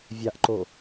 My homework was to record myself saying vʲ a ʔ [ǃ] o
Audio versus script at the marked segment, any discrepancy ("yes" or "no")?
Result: no